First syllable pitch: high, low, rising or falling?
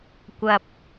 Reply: low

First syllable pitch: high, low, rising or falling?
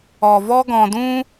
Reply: low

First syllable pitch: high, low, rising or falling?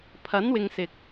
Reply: rising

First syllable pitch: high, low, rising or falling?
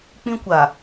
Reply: high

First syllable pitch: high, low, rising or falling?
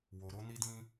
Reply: low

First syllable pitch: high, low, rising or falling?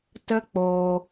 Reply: high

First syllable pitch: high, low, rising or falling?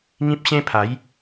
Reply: high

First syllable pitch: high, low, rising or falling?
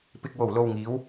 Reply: low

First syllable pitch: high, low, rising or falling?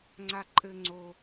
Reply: high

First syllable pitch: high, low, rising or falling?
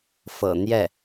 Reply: low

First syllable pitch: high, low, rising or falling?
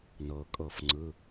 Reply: low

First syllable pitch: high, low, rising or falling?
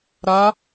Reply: rising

